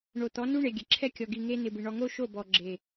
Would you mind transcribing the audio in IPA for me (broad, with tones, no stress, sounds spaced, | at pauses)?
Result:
ɳ o˨ t̪ ɔ˨˦ n u˦ ɳ e˨ ɡʲ ɛ˨ ǁʰ ɛ˦ kʲ ɔ˨ ɡ i˨ ŋ e˦ n̪ ɪ˨ b ɪ˨ ɳ ɔ˨ ŋ o˦ ʃ o˦˨ b ɔ˨ ɡ͡ǁ e˨